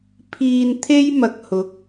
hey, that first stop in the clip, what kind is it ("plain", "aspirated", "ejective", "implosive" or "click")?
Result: aspirated